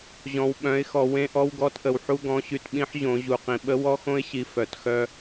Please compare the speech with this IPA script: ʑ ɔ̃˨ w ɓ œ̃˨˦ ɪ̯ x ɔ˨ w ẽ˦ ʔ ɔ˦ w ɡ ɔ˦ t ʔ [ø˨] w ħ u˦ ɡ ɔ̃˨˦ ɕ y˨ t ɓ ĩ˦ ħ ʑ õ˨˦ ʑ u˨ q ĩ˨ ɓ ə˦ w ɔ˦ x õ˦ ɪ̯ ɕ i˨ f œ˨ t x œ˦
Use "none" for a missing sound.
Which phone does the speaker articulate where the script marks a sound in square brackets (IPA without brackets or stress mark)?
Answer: ə˨